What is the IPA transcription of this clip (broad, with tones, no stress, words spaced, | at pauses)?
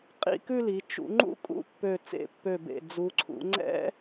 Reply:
qʼḭ˥˧kʉ˥˧li˩˧ t͡ʃṵ˩˧ŋ͡ǃṵ˥ kʼṵ˥˧pːø˧˩ t͡sḛ˧˩pːø˧˩bḛ˧˩ d͡zu˩˧ǀʰṵ˩˧ ŋ͡ǀɛ̰˥